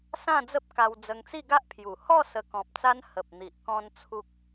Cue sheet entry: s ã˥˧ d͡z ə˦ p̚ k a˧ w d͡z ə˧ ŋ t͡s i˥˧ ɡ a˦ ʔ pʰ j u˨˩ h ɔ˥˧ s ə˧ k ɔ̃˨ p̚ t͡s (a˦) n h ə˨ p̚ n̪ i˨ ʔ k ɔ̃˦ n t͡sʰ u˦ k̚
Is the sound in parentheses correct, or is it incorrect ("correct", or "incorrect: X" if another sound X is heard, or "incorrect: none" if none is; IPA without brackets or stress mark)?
correct